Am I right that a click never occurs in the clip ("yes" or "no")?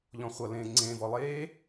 no